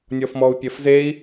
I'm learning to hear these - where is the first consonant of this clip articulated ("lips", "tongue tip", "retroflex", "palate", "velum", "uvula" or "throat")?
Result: tongue tip